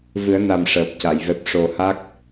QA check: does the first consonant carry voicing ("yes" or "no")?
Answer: yes